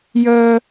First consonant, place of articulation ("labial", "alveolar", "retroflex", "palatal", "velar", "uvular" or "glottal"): palatal